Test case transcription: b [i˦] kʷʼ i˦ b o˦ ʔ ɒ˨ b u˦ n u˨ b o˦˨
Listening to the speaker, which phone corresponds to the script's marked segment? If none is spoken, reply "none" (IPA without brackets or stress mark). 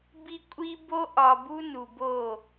i˦